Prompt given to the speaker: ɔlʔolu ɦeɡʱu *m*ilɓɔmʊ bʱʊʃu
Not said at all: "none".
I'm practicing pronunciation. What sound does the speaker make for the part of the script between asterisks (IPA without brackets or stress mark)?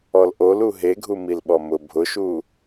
m